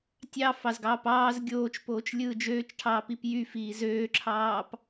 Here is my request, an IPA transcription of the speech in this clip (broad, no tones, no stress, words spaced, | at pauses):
tʲɑ fɑzɡɑːpɑːz ɡʲoːt͡ʃpoːt͡ʃ lʲɯːd͡ʒøːt͡ʃʈʰɑː pipjyfiː zøːǁʰɑːp